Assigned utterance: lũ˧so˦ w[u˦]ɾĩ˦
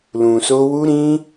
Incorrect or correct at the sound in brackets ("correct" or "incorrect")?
correct